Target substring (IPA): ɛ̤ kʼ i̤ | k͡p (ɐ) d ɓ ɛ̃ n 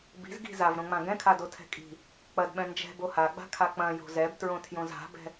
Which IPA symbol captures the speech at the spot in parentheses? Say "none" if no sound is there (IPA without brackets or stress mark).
ɐ